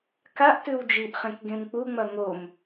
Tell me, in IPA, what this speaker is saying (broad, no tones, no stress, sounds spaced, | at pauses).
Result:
k a ʔ t ʉ w d͡ʒ i ʔ χ ẽ k ɡ ẽ m k͡p u ŋ͡m ɐ ŋ o m